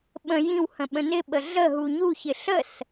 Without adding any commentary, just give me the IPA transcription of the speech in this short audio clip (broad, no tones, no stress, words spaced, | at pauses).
ɓə̃ jĩw hə̃ɓə̃nɪɓə ɮəɦu ɲuçɪ ɬəs